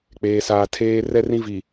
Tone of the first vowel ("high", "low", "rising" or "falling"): low